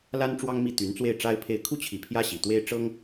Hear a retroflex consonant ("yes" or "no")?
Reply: yes